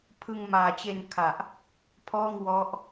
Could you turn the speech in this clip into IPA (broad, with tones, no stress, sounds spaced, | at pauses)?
pʰ ɯ˧ ŋ m aː˨˩ t͡ɕ e˧ n kʰ a˨˩ ʔ | pʰ ɔː˥˩ ŋ w ɔ˦˥ ʔ